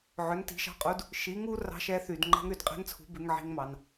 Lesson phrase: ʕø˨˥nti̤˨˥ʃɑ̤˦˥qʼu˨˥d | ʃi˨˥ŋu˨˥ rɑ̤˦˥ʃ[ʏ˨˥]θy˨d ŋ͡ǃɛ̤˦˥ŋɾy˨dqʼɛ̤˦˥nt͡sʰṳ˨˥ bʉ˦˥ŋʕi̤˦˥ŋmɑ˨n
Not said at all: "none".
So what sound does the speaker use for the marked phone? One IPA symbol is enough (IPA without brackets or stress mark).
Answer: ɛ˨˥